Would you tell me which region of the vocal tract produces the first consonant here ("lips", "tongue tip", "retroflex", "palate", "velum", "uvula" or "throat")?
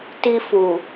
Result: tongue tip